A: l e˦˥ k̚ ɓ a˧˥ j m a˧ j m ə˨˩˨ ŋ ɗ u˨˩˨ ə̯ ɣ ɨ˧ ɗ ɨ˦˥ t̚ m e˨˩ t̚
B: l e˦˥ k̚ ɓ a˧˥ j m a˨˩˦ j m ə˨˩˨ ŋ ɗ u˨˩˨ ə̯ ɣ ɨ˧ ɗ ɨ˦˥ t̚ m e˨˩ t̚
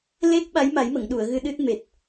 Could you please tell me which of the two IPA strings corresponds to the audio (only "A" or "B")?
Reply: B